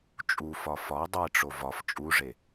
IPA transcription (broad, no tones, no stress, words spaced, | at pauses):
t͡ʃʼufɒ fɒ dˤeʈ͡ʂo vɒf t͡ʃʼuʐe